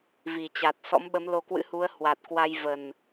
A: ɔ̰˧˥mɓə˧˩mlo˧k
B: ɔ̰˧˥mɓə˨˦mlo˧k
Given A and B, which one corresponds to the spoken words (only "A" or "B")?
B